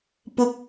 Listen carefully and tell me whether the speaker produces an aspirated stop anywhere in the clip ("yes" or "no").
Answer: no